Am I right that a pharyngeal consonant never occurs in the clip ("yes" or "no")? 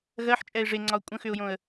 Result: no